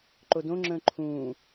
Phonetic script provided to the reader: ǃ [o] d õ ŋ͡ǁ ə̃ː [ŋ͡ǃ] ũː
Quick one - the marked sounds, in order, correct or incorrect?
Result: correct, incorrect: ǃʰ

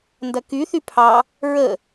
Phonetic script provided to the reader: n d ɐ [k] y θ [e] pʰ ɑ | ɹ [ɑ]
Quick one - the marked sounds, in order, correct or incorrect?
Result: correct, incorrect: y, incorrect: ə

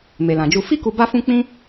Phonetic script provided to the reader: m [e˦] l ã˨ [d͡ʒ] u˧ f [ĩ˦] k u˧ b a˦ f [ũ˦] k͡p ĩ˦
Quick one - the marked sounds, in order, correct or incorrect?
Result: incorrect: e˨, correct, incorrect: i˦, correct

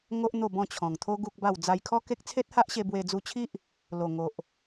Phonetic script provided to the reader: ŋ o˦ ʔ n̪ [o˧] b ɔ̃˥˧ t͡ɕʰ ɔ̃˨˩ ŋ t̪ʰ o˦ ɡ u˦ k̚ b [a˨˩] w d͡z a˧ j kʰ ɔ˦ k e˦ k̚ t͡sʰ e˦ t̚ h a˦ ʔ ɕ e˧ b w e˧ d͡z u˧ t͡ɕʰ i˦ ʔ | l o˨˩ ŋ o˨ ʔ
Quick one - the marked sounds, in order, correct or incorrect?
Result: incorrect: o˥˧, incorrect: a˥˧

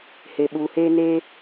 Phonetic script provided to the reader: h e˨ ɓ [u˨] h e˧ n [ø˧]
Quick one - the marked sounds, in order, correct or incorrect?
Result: correct, incorrect: e˧

